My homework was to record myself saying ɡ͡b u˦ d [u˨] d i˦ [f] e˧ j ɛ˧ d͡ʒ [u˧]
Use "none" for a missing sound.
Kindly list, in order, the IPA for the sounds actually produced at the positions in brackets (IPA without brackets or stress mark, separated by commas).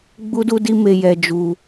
u˦, m, u˧